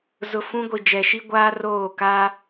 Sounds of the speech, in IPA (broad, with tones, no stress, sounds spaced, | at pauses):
z ʊ˨ f ũ˦ ɡʷ i˨ d͡ʒ ɛ˨ ʃ i˦ ɡʷ aː˦ r oː˦˨ k aː˦